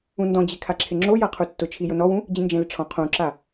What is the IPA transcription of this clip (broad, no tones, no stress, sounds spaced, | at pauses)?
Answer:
ũ n d ɔ̃ d͡ʑ e kʰ a ǁʰ ɪ ŋ͡ǁ o j a qʰ u tː ʊ t͡ʃʰ i j ʊ n ɔ w ũ | d͡ʑ ĩ n d͡ʒ ẽ l ɪ ʈ͡ʂʰ ɔ̃ qʰ ũ ǁ a